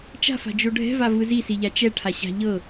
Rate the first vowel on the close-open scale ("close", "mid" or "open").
open